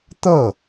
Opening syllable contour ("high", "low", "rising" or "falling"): falling